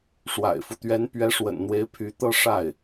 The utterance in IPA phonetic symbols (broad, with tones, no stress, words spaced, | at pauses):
ʂwa̰˨˩ɪ̯fu˦t̪ɥɛ˧˥n pɥɛ˧˥ʂwə̰˨˩nn̪we˧˥ɪ̯ pʰy˧˥t̪ɤ˥˧ ʂa˥˩ɪ̯